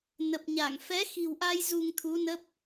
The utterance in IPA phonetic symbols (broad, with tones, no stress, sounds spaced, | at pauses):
n ə˨˩ p̚ ɲ a˧˩ ŋ f ɛ˨˦ x i̤˨˩ w ʔ a˧ j z u˧ ŋ t̪ʰ u˨˦ n ə˦˥ p̚